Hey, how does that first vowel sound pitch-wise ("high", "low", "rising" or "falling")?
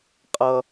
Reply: low